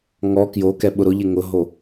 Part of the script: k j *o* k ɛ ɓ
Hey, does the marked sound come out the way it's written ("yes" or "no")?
yes